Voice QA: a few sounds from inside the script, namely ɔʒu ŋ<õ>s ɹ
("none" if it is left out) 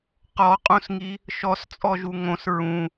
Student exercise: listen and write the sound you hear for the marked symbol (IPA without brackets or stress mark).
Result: õ